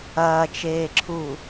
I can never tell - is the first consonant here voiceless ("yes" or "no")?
yes